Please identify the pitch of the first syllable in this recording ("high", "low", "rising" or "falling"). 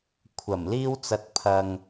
low